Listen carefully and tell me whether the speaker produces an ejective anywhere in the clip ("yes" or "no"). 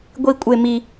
yes